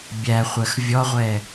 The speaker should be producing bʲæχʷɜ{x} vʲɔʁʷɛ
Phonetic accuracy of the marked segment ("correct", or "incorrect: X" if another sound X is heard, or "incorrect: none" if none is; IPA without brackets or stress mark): correct